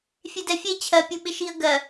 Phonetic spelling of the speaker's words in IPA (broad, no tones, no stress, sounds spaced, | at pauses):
fʲ e d ɛ fʲ e t͡ɕʰ ɜ pʲ u ɓ ɪ ʃ i ə̯ ɡ ɜ